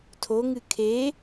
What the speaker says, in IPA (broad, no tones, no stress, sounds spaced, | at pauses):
tʰ o ŋ ɨ kʰ e